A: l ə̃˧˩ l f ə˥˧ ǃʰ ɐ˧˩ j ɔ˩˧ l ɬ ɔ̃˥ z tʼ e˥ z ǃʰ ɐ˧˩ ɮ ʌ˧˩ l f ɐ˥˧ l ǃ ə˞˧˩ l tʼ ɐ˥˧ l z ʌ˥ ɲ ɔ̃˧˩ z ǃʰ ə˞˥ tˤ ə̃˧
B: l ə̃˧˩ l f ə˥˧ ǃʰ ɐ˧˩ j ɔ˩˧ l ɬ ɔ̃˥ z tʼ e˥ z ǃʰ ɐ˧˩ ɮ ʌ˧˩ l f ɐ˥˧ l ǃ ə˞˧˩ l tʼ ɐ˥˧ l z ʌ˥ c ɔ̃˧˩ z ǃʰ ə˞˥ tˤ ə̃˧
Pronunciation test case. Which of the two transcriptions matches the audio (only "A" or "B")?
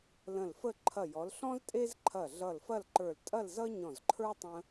A